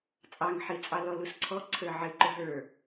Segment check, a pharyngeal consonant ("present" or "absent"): present